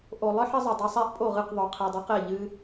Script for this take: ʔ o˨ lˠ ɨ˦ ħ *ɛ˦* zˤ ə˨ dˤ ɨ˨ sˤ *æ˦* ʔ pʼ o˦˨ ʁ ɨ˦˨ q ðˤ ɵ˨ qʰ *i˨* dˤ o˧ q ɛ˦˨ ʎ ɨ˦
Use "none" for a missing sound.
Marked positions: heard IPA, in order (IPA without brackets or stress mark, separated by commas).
ə˦, æ˦, i˨